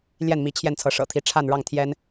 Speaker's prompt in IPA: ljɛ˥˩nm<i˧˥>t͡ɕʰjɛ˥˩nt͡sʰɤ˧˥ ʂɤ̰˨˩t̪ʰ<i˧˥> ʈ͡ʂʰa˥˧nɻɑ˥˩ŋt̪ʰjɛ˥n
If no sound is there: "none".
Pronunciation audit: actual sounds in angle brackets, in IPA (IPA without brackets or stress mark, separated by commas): i˧˥, i˧˥